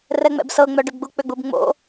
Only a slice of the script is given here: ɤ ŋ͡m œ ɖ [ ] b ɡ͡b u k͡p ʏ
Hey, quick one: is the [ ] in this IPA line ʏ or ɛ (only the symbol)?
ʏ